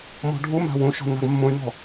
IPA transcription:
mɔ̤ɖʱuma̤ wũʃɔ̤ na̤ɡmːũy̯nɔ̤

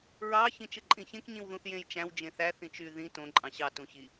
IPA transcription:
ɹɑ çĩt͡ʃɯǃʼĩçẽk ɲĩwðũθjẽjt͡ʃæ̃w d͡ʒẽθæ θĩt͡ʃy ðĩ tõ ǃʼɑ̃ɕɑ tũçi

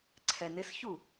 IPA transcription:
ǀʰɛnɪsçu

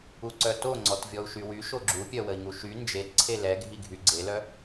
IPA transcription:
uǀœtoŋ͡ǀɔt vʲɔu̯ʃywy ʃoɡ͡ǁupʲœ wəi̯ŋuʃy nd͡ʒetǀʰe lɛɡʱiɡʱy ɡ͡ǀelœ

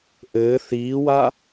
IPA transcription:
ʔɘː θiːwa

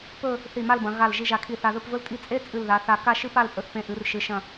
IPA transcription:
pɵ˥˧ | θi˧˩ma˥˧lbɐ̃˩˧ ɣa˧˩l ʒi˧ʒa˧˩kʰi˧˩ θa˧ðɵ˥˧pvɵ˥ltʼi˥˧ t͡sʼe˥ t͡sʼɨ˧˩lða˩˧θa˧˩ka˥˧ ʃɨ˥pa˥˧lpʼɵ˧θpẽ˧ ʔɨ˩˧rʃɨ˩˧ʃɐ̃˧˩

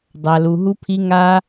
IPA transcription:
dˤa˨lu˨ɦu˧pʰi˧ ŋa˦

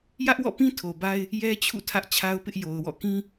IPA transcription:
jä˦ʔwɔ̰˦˨pĩ˦ tʰo˨ba˦ɪ̯ | jɛ˦t͡ɕʰṵ˦˨ tʰä˦ʔt͡ɕʰa˦ʊ̯pɪ˦ʔ jo˨ʊ̯wɔ̰˦˨kĩ˦

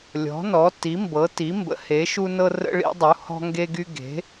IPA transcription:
lʲɔ̤˩˥nɔ˩˥ ti˩˥mbɤ˩˥ti˩˥ mbə̰˩˥he˩˥ʃu˦nɤ˦ rə̰˦ɭḭ˦dˤu˩˥ hɔ̤˦ŋɡe˦ɡy˦ ɡe̤˩˥

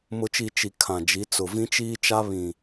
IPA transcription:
mʊ˨t͡ʃi˨ t͡ʃi˨ kʰã˨d͡ʒi˨˦ t͡sʊ˨vĩ˦t͡ʃiː˦t͡ʃa˦ βĩ˨

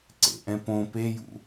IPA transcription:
ǀḛʔɛ̃ põ pejṵ

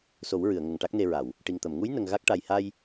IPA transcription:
so˨˩˦wɹɨ˨˩˨ə̯ ŋə˨˩ŋʈa˦˥k̚ne˧ɹa˨˩˨w | ʈi˨˩ŋt̪ə˨˩˨mŋu˧˥j nə˧ŋɣa˦˥k̚ʈa˧j ha˧j

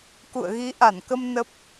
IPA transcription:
kṵ˧˨ə̯ɣi˨˦ʔa˧˩nkə˧m nə˦˥p̚

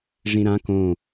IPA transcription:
ʐĩɾã kõ

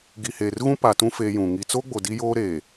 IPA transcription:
ɡi˨heː˨rɣũ˦ pa˨tũ˦ feː˦jũ˨ ŋi˨t͡so˦ɡ͡bo˨ di˦joː˦ɾeː˨

